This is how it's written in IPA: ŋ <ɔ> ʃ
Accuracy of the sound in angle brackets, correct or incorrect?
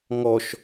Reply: correct